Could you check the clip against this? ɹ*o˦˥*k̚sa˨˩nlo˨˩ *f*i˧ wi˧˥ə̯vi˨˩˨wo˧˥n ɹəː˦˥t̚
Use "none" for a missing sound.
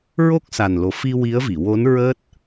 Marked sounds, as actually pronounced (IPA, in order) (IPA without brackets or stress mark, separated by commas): o˦˥, f